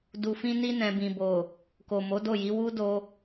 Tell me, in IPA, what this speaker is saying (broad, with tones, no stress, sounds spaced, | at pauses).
d u˨ f ĩ˧ n i˧ n ɛ̃˨ b ĩ˨ b o˨ | k o˨ m o˨˦ d o˦˨ j i˨˦ w u˦ d o˧